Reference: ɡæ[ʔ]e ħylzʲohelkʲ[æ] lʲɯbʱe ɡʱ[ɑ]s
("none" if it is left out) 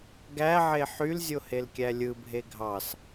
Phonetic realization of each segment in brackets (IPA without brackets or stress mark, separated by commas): ʕ, æ, ɑ